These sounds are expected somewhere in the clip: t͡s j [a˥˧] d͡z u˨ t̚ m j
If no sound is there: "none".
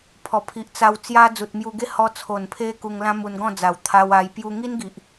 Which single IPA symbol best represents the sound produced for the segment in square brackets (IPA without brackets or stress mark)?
a˦